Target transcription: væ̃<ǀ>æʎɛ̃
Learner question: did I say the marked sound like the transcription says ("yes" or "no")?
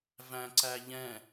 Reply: yes